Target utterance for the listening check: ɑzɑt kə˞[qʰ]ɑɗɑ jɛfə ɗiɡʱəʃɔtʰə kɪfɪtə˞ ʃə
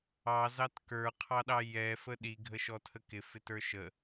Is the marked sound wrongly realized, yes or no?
no